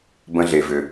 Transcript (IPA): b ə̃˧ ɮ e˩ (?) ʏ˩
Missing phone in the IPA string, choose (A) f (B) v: B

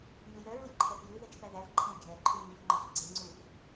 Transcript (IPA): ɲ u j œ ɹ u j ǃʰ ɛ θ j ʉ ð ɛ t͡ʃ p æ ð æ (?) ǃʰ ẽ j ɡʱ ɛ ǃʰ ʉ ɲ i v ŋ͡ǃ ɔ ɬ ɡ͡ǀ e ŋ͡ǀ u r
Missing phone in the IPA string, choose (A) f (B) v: B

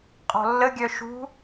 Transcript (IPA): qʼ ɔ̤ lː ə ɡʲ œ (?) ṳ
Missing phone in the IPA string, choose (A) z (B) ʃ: B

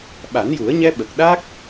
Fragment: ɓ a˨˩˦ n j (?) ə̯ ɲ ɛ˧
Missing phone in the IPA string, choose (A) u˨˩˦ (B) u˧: A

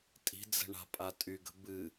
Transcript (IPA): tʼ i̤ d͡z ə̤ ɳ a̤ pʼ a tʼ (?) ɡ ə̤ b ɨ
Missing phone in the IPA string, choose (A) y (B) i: A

